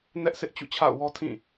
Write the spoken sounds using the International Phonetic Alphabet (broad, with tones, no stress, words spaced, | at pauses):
nɛ˦ʔ sɪ˦ʔ t͡ɕṵ˦˨t͡ɕʰa̰˦˨ʊ̯wɔ˦ tʰĩ˦˨